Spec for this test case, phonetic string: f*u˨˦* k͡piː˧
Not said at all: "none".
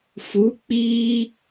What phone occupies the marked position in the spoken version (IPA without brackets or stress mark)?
u˨˦